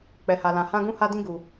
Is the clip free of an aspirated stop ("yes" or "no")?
yes